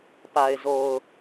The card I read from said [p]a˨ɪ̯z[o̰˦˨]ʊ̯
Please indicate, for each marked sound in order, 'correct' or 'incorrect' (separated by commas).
correct, incorrect